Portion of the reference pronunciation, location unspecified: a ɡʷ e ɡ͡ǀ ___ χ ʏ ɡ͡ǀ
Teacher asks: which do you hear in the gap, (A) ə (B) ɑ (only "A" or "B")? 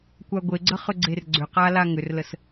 A